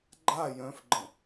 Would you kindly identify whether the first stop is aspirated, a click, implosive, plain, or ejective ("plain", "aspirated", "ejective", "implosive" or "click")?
click